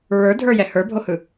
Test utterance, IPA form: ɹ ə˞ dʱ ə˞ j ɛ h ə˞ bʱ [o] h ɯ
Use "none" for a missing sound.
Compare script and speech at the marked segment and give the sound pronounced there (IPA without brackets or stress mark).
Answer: o